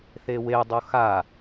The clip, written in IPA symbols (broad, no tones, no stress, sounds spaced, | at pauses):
θ e w e dˤ o x a